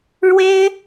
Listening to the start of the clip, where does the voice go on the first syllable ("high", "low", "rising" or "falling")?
high